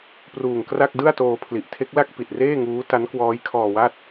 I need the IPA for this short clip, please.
p r uː˨˩ ŋ k r a˥˩ k̚ d ɯ˥˩ a̯ t oː˧ pʰ l i˨˩ ʔ tʰ e˦˥ k̚ l a˥˩ k̚ p i˨˩ t̚ r eː˥˩ ŋ uː˦˥ t a˦˥ n k w ɔː˦˥ j kʰ ɔː˧ w a˥˩ t̚

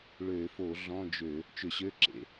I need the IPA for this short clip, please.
ɭ ø˧˩˧ f o˧˩˧ ɮ ɔ̃˧˥˧ d͡ʒ ø˧˩˧ | t͡ʃ ʏ˧˩˧ ɕ ø˧˥˧ ǁ ḛ˧˩˧

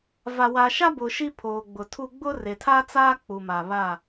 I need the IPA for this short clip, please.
v a˨ w a˨ ʃ a˦ b ʊ˨ ʃ i˦ pʰ oː˨ ɡ͡b ʊ˨ tʰ u˦ ɡ͡b ʊ˦ r e˨ tʰ a˦ t͡s aː˦ k͡p u˨ m a˨ β a˦˨

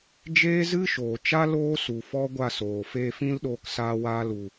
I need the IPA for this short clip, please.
d͡ʒ eː˦ z ɨ˦ ʃ oː˨ t͡ʃ a˦ l oː˦ s u˨ f ɔ˦ ɡʷ a˦˨ s oː˨ f eː˧ f ĩ˦ l ɗ oː˧ k s aː˧ w aː˧ l u˨

